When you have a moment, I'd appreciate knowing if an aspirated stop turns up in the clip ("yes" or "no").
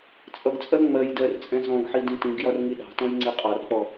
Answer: no